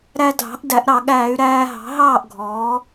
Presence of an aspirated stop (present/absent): absent